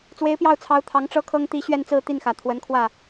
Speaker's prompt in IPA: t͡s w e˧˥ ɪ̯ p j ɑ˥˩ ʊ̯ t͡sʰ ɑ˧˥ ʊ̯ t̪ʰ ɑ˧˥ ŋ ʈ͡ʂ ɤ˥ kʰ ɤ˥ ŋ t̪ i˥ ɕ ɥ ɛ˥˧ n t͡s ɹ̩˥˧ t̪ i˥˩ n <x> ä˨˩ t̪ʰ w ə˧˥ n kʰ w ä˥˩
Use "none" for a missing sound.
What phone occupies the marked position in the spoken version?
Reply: x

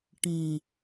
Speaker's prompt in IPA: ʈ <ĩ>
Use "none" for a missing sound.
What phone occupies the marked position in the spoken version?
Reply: ĩ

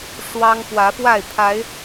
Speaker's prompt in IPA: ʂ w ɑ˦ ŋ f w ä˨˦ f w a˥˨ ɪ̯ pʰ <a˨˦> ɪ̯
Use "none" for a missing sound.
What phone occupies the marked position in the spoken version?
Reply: a˨˦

